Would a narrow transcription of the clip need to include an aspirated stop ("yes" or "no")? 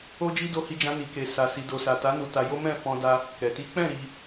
no